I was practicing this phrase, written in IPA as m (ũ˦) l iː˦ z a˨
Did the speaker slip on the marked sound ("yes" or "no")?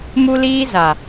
yes